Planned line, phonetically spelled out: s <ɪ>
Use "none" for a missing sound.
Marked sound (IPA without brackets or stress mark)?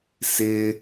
ɪ